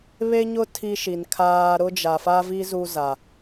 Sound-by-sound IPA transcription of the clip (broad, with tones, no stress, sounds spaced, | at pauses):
β e˦ ɲ ʊ˦ tʰ i˦ ʃ i˨ n kʰ aː˦ ɾ ʊ˦ d͡ʒ a˨ f a˦ v i˦ z u˦ z a˨